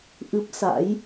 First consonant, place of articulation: glottal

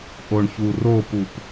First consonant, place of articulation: glottal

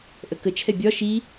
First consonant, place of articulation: glottal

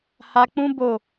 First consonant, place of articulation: glottal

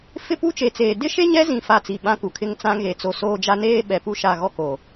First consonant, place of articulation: labial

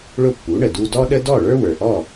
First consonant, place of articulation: retroflex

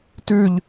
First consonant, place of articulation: alveolar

